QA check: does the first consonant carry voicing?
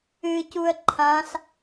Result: no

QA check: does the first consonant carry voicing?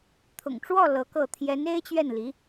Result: no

